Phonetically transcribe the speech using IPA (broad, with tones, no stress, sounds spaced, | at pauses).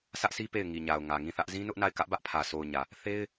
sʰ ä˦ ʔ sʰ i˦ p e˦˨ ɪ̯ ŋ i˨ ɲ a˨ ʊ̯ ŋ ä˨ ŋ ĩ˦˨ θ ä˦ ʔ z ĩ˦ n ʊ˦ ʔ n a˦˨ ɪ̯ k ä˦ ʔ b ä˦ ʔ pʰ ä˨ sʰ o˨ ʊ̯ ɲ ä˨ | θ e˦ ɪ̯